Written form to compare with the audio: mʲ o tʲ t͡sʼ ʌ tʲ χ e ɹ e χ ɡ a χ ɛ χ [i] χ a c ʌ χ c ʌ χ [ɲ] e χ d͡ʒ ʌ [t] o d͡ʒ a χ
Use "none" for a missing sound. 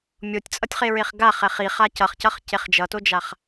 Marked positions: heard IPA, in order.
i, c, t

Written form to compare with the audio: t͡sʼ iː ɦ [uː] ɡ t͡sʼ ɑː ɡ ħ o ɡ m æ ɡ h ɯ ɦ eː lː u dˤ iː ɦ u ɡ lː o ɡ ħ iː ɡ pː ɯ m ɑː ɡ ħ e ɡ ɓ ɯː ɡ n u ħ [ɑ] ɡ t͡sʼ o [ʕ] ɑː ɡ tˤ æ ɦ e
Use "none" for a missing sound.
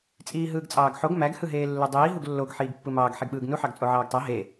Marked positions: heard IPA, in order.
ɯː, ɑ, ʕ

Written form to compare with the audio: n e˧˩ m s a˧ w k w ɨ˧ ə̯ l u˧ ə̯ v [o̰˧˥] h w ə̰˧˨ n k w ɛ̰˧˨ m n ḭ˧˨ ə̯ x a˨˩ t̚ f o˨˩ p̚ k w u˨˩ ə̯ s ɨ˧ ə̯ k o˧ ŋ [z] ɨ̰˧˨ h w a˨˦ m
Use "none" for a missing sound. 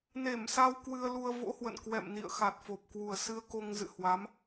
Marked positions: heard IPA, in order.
o̰˧˥, z

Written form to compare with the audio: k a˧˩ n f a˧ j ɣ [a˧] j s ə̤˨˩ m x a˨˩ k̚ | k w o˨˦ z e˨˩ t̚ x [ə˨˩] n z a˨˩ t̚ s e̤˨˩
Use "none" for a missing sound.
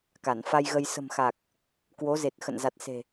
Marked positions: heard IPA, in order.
ə˧, ə̰˧˨

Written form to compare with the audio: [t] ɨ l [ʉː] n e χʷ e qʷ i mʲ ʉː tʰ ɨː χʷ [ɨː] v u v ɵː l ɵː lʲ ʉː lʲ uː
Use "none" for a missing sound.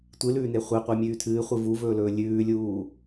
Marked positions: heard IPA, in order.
tʷ, ʉː, ɨ

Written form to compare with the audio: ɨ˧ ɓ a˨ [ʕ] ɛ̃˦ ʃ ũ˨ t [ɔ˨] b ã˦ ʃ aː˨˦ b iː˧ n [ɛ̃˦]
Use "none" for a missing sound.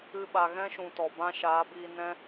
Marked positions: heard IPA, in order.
ɣ, ɔ˨, ɛ̃˦

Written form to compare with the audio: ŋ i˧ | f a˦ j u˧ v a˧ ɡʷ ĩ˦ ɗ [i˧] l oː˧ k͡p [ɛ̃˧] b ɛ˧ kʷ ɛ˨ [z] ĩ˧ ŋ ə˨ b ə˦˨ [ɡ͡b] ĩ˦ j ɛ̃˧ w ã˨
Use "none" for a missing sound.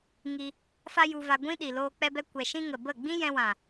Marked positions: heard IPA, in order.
i˨, ɛ˧, ʃ, ɡ͡b

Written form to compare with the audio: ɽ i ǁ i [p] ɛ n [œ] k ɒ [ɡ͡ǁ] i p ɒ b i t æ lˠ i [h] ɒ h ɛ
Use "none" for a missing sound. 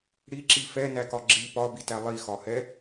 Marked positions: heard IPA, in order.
f, æ, ɡ͡ǁ, x

